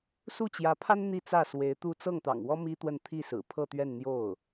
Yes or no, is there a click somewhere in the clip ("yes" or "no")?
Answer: no